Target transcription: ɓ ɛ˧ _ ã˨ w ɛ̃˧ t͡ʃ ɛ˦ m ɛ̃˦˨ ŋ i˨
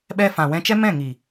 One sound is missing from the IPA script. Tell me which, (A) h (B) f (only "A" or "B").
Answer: B